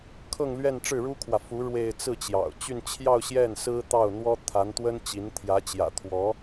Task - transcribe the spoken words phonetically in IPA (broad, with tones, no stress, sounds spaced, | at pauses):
kʰ ɤ˥˧ ŋ l ɥ ɛ˥˧ n ʈ͡ʂ ɻ̩˥˩ ɻ u˥ kʰ w ä˨ f u˧˥ ɻ w e˥˧ ɪ̯ t͡s ɹ̩˥˩ t͡ɕ j ɑ̰˨˩ ʊ̯ t͡ɕ y˥˧ n t͡ɕʰ j ɑ˥˧ ʊ̯ ɕ j ɛ˥˩ n s ɹ̩˥ t̪ ɑ˥˩ ʊ̯ n̪ w ɔ˥ t̪ʰ a˧˥ n t̪ w ə˥ n t͡ɕ i˧˥ n t̪ʰ j ä˧˥ t͡ɕ j ä̰˨˩ t̪ʰ w ɔ˧˥